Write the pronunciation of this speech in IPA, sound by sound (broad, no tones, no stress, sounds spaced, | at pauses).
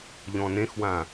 ʎ ɔ̃ n ẽ x w ã